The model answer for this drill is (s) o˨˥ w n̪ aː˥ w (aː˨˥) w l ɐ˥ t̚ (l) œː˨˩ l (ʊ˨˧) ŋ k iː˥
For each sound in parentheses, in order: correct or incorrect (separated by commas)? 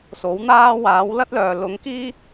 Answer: correct, correct, correct, correct